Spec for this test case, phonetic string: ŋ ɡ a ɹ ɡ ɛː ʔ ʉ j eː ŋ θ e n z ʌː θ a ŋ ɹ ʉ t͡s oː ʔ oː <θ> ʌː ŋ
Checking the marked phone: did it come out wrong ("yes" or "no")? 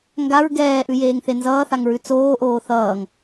no